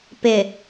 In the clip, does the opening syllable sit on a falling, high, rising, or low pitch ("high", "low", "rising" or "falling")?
low